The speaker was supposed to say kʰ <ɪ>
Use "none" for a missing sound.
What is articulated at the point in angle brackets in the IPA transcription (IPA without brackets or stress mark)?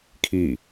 i